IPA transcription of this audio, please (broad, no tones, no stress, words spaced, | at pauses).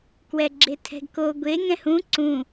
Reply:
kwɛɡ͡ǁetʰɛ̤ɡko ɡʷe ŋɛ̃hũ ǀũ